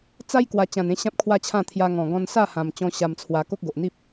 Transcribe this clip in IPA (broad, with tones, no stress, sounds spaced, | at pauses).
t͡s a˦ j k w a˨˩ t͡ɕ ã˨˩ n ẽ˦ ɕ ã˦ p̚ kʰ w a˦ t͡ɕʰ ã˥˧ t̪ʰ j a˧ ŋ ɔ̃˨˩ ɡ ɔ̃˧ n s a˥˧ h ã˨˩ m t͡ɕ ɔ̃˧ ɕ a˧ m t͡sʰ w a˧ k o˦ k̚ ɡ o˨ ʔ n̪ i˦ p̚